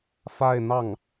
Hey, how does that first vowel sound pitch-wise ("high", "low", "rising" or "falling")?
falling